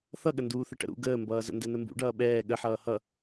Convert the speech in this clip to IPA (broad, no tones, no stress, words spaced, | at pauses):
θʌɠə nduːθəʈə̰ɾṵ ɡəːmbʌːzə̰ ndɛnəmbṵ ɖʌːɓɛː ɠəħʌː hʌ